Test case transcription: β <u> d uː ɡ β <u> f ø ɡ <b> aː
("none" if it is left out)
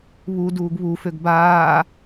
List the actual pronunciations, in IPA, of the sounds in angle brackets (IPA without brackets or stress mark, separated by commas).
u, u, b